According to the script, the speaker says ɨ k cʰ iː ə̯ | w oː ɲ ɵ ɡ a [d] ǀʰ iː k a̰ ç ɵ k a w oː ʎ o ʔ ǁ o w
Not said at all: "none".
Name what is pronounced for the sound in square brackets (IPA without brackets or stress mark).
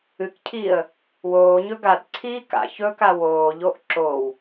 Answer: d